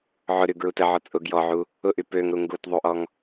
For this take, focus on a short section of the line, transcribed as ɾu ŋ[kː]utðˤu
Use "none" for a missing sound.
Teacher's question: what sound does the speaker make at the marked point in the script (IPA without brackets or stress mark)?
ɡ